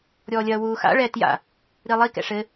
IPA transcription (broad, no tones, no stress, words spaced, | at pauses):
ɾʲɔːlʲɐːwuːxa̰ ɭɛ tja̰ | ɾilˠi kɛ̰ʂɘ